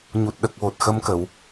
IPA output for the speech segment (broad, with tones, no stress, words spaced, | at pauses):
ɲu˨˩t̚ɗə˨˩k̚wo˨˩t̚ xə˧˥mkə˨˩˨w